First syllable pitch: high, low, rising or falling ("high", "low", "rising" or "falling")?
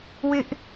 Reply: high